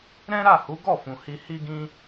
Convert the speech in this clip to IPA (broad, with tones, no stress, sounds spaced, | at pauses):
ɾ ɛ̃˦ ɾ a˦˨ h u˨˦ ɡ ɔ˦˨ f ũ˨ h i˧ h i˦ ɡ ĩ˦